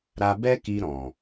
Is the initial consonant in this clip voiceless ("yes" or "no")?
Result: no